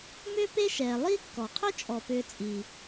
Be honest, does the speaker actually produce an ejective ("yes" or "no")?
yes